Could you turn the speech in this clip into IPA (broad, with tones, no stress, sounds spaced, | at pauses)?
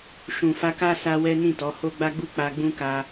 ʃ ũ˨ f a˧ k a˦ s a˦ w ɛ˦ n ĩ˦˨ t ɔ˨˦ h o˦ ɡ͡b a˦ ɡ͡b u˦˨ k͡p a˧ ɡ͡b ũ˦ k a˧